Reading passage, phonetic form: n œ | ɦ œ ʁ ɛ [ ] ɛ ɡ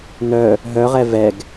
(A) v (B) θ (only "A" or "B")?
A